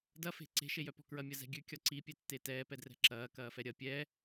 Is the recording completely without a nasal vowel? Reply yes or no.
yes